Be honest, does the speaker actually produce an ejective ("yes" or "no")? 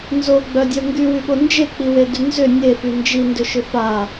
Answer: no